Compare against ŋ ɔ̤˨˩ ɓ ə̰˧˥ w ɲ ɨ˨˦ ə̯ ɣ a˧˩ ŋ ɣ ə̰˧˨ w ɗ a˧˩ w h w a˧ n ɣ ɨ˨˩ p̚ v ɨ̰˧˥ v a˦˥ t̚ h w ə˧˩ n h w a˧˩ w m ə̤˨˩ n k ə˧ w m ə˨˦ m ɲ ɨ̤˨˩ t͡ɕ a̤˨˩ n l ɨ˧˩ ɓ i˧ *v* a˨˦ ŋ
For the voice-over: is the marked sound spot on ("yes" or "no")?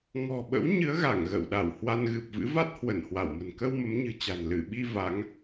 yes